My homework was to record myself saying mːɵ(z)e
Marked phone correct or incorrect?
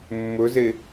correct